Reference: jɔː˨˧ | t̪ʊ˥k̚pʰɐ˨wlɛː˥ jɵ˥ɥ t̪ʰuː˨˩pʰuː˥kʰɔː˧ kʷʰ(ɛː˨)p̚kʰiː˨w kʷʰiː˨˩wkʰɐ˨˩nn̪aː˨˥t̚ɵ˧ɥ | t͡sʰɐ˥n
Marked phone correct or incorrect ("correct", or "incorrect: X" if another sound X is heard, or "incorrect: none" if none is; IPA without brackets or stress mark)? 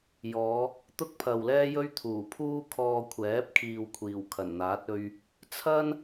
incorrect: ɛː˨˥